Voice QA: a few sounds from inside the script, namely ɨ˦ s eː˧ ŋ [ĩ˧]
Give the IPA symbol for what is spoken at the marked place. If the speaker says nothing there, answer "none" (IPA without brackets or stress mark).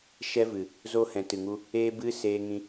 ĩ˧